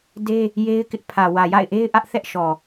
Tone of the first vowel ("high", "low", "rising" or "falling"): high